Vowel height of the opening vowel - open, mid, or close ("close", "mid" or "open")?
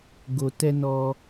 mid